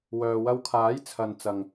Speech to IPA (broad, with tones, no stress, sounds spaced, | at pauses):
w œː˨ w ɐ˧ w kʰ aː˨˥ j t͡sʰ ɐ˨ n t͡s ɐ˨ ŋ